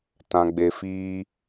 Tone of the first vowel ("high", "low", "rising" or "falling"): low